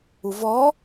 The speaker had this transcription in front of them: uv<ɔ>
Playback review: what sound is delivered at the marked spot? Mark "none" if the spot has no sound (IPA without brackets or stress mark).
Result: ɔ